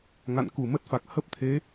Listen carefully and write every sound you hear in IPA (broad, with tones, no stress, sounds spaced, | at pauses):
ŋ a̰˧˨ n k u˧˩ m ə˦˥ t̚ f a˨˩ k̚ h ə˦˥ p̚ t̪ʰ e˨˦